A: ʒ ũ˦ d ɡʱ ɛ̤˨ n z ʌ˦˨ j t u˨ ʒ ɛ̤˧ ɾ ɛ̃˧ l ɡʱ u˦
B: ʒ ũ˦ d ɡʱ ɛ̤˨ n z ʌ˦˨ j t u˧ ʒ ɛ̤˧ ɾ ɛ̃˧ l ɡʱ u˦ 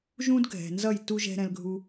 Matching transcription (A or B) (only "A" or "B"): B